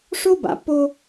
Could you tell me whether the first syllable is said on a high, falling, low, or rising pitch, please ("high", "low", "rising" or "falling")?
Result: high